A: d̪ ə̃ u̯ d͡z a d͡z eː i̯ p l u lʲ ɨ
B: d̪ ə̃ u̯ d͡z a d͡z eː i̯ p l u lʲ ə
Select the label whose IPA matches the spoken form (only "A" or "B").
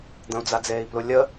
B